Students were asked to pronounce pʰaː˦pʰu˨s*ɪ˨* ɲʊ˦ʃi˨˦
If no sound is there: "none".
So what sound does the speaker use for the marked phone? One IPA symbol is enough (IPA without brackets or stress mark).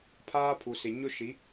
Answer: ɪ˨